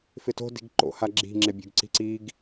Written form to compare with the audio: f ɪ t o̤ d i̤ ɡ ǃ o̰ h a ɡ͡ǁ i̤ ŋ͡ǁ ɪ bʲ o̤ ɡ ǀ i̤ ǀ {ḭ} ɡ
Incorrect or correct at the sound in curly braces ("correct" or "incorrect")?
incorrect